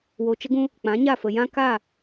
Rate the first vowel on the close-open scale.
mid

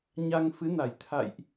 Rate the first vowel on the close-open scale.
open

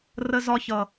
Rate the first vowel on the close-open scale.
mid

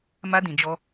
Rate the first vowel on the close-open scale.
open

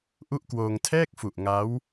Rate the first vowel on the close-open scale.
close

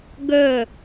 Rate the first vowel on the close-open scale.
mid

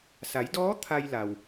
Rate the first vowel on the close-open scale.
open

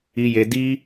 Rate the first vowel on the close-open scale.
close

